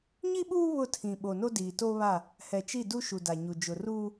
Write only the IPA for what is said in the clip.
ɲ i˦ ɓ uː˦ β ʊ˦˨ tʰ ĩ˨ ɓ o˨ n o˦ d iː˨ t o˦ β a˦˨ | h ɛ˨ t͡ʃ i˦˨ d u˦ ʃ u˨ d a˨ ɲ u˨ d͡ʒ ʊ˨ r uː˦

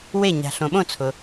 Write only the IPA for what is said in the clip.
w e˥˩ ɲ a̤˨ ɬ õ˨ ɓ õ˥˩ t͡sʰ ʊ˨

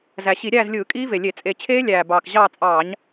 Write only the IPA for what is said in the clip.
z æ˨˩ ɕ i˧˩˧ ɾʲ æː˦˨ z lʲ ɯː˧˩˧ kʼ iː˦˥ v e˨˩ lʲ e˧˩˧ t͡sʼ e˧˩˧ t͡ɕʰ eː˦˥ lʲ æː˨˩ b ɑː˨˩ k ʑ ɑː˦˨ t͡sʼ ɑː˧˩˧ ɲ

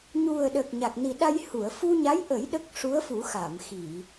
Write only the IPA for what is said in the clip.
ɲ u˨˩ ə̯ ɗ ə˨˩ k̚ ɲ a˨˩ k̚ n i˨˩ ɗ a˧ j h u˨˩˨ ə̯ f u˧ ɲ a˧˥ j ʔ ə˨˩˦ j ɗ ə˦˥ k̚ ʂ u˧˥ ə̯ f u˨˩˦ x a˨˩˨ m x i˨˩˨

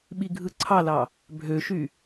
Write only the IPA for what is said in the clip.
ɓ i ɡʱ ɯ ǀʰ ɑ l ɑ | bʱ ø ʃ y

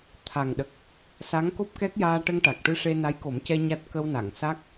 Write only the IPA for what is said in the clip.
t̪ʰ a˨˩ ŋ ɗ ə˨˩ k̚ | s a˧˥ ŋ k o˦˥ p̚ k ɛ˦˥ k̚ j aː˧ ʈ ə˧ ŋ ʈ a˨˩ k̚ ʈ ɨ˧ ʂ e˧ n a˧˥ j k o˨˩˦ m c ɛ˧ ɲ a˦˥ t̚ k ə˧ w n a˨˩˨ ŋ s a˦˥ k̚

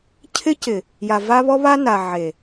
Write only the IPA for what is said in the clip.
cʰ ɪ˦ c ɪ˨ | j a˨ v a˦ β ɔ˦ β a˦ n a˨ ʕ e˨

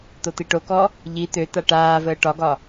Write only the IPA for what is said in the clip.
t̪ o t̪ i ʈ o k ɔ | ʎ i t̪ ø t̪ a ʈ aː v əː ʈ ɒ ɡ ɒ

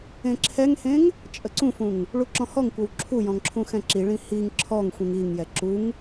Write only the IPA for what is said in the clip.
ẽ ǁʰ ɛ ŋ h ẽ ŋ | t͡ʃʼ ə ǀ ũ f ũ ŋ | ɭ u ǁ ɔ̃ h ɔ ŋ kʷ ɤ w ǁʰ u j ɔ̃ ŋ ǁʰ ũ x ɛ̃ ǁ i ɭ ĩ h i ŋ ǁʰ ɔ ŋ xʷ ĩ ŋ i ŋ j ɛ ǁ u ŋ

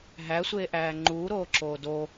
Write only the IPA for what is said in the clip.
ɦ æ sʷ eː ʔ æː ŋ͡ǃ uː ɾ oː ǁ oː d o

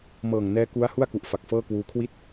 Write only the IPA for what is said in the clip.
m ɤː˨˩ ŋ n ɛː˦˥ k u˦˥ a̯ h u˥˩ a̯ k u˨˩ ʔ f a˨˩ k̚ f ɤː˥˩ k w uː˦˥ kʰ w i˥˩ t̚

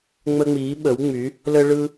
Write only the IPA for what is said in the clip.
ŋ͡m ə˦ ŋ͡m iː˨˥ ɓ ə˨˥ w ŋ͡m y˨˥ | l ə˦ ɭ ɯ˦

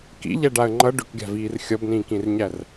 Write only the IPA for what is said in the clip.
k ḭ ʎ æ ɖ a ə̯ ŋ͡ǃ ʌ ɖ ʏ k ɡʲ a̤ v iː r xʲ ʌ b n ĩː k ĩ r ɲ æ r

